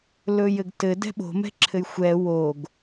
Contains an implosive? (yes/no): yes